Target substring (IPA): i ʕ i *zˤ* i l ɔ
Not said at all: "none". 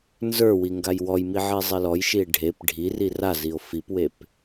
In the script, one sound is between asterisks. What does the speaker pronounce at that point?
zˤ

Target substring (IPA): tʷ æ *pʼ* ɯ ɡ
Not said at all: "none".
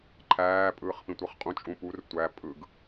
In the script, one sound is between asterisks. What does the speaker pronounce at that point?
pʼ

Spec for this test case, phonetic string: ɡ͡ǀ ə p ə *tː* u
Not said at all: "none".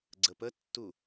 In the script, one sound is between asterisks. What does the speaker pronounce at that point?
tː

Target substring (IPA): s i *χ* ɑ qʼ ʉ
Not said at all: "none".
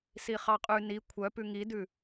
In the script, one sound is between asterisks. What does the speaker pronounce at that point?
χ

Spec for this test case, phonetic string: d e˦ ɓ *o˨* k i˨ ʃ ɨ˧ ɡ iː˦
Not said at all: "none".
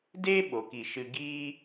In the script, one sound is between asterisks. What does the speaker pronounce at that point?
o˨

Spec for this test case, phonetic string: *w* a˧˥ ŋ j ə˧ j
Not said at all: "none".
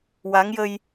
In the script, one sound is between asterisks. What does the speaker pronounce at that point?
w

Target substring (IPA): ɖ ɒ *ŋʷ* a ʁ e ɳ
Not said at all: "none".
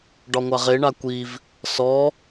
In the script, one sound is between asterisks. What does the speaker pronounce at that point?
ŋʷ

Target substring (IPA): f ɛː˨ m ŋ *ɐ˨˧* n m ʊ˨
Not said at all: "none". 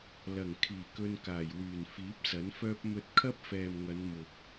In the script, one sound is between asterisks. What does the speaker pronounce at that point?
ɐ˨˧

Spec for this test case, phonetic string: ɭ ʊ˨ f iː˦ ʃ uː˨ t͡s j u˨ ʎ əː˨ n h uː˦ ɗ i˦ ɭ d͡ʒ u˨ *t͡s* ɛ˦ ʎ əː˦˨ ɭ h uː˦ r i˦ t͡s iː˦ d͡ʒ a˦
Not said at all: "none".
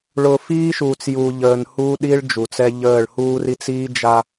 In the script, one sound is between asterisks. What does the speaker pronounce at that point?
t͡s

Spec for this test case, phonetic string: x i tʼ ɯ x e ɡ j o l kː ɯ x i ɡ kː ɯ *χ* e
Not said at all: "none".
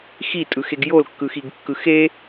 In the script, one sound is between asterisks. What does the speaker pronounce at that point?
x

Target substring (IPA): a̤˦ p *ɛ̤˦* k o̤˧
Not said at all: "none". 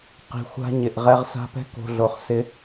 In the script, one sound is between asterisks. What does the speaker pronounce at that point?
ɛ̤˦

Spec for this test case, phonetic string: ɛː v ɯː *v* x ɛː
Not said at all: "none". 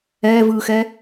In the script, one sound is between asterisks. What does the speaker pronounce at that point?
none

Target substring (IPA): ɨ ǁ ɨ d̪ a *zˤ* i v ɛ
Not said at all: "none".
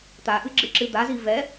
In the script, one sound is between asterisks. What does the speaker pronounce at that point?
z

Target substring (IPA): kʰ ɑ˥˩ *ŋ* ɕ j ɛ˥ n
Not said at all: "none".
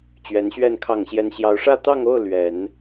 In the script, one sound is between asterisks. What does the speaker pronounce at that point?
ŋ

